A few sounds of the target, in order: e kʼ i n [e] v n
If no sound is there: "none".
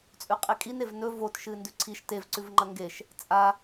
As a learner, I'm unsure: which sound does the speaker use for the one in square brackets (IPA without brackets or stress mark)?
e